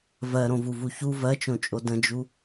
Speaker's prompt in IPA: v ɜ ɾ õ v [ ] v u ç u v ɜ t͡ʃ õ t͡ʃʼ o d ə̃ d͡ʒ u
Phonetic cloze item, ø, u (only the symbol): u